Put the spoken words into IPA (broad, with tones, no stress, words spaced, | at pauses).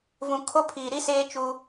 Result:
vũ˨kʰo˦pʰiː˨ɾi˦ seː˦t͡ʃu˦